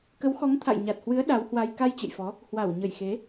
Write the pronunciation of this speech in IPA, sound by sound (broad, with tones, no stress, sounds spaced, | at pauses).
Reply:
k ə˨˦ w x ɔ˨˦ ŋ t̪ʰ a̰˧˨ j ɲ a˨˩ t̚ h w ɨ˨˦ ə̯ ɗ a˨˦ w h w a˧ j k a˧ j t͡ɕ ɨ̰˧˨ j f ɔ˨˦ | h w a˧˩ w ɲ ə˧˩ j x e˨˦